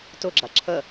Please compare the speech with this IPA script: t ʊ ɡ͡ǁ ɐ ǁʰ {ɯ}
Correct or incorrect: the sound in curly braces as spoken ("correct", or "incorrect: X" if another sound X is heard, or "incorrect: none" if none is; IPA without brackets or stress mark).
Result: incorrect: ə